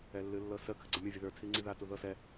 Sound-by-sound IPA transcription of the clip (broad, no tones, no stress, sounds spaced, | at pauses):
ɛ lː ɨ lː ɤ s ə kʰ ɨ ɡ͡ǀ ɤ mʲ ɤ vʲ ə ð ə˞ tʰ i ŋ͡ǀ i ð a t u ð ɤ s ɛ